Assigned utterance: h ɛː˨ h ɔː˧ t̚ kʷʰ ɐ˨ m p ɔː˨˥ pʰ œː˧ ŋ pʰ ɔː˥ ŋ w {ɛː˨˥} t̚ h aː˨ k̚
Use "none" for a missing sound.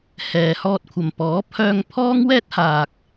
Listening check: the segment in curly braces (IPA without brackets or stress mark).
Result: ɛː˥